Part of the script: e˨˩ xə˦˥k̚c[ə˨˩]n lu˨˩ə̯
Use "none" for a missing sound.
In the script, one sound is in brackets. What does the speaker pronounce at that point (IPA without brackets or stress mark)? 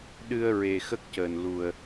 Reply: əː˨˩